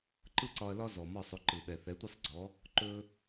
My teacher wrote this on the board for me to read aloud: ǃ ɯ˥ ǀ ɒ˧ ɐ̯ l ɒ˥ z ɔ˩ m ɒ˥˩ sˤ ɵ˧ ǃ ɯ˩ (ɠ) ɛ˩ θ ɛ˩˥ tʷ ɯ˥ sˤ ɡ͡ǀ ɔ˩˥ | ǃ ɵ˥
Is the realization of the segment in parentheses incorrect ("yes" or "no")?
yes